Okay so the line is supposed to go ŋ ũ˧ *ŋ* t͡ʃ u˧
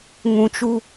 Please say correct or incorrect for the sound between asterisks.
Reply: incorrect